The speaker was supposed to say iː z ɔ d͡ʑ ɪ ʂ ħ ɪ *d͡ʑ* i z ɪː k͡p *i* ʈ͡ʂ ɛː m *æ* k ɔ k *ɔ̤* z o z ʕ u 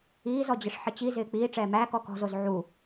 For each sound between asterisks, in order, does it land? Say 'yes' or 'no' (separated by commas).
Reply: no, no, no, yes